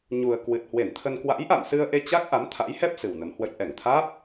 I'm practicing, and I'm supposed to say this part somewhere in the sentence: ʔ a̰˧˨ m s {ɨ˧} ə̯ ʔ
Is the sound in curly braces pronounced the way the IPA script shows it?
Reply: yes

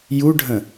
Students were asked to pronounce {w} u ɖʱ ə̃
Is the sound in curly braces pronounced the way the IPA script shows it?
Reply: no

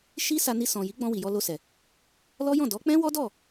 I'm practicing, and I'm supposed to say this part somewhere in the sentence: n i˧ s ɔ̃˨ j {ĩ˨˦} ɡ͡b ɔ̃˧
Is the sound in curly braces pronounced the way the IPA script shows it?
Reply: no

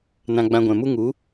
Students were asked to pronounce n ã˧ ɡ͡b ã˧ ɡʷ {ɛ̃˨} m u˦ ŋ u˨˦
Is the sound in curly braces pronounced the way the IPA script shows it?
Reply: yes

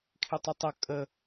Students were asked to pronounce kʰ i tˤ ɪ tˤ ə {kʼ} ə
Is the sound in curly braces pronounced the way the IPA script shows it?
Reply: yes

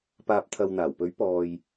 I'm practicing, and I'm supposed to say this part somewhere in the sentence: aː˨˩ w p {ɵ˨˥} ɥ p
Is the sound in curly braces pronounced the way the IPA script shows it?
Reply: yes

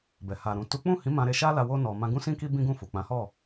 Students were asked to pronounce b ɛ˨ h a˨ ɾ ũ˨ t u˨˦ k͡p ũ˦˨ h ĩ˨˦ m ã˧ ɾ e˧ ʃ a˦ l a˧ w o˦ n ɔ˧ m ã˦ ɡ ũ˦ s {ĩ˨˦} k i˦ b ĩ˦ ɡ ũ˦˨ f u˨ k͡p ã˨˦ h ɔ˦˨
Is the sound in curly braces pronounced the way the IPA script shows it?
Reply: no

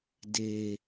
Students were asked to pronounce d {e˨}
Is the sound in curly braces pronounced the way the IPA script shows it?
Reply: yes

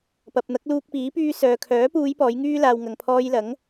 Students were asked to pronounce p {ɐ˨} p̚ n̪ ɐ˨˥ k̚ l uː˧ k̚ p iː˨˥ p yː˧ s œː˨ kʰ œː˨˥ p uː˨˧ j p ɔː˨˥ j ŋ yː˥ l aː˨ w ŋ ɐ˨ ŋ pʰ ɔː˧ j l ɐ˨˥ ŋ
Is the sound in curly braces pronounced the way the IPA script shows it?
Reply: yes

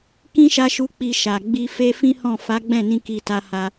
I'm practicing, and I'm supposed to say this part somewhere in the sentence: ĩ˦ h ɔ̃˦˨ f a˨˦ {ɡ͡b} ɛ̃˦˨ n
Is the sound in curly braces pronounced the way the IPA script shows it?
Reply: yes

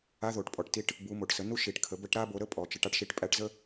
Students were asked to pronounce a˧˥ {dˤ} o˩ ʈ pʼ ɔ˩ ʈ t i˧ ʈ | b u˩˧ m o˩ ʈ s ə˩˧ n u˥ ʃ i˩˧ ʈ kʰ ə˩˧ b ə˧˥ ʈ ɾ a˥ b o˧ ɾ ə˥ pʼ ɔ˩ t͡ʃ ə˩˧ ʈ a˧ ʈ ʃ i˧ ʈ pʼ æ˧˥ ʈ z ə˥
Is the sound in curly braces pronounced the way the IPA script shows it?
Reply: no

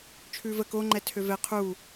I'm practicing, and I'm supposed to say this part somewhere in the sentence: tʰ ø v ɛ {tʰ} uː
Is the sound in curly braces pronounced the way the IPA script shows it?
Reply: no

